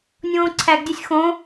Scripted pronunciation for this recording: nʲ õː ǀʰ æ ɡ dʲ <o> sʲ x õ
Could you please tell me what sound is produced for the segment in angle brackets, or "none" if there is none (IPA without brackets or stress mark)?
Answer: o